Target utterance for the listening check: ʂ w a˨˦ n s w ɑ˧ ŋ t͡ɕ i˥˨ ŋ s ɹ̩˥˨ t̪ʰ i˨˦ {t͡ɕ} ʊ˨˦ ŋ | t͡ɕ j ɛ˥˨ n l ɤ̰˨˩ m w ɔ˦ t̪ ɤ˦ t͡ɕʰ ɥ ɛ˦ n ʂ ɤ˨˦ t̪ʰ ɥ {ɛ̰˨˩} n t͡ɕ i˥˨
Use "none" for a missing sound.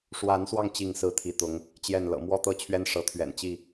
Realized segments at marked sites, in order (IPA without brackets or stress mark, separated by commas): t̪, ɛ̰˨˩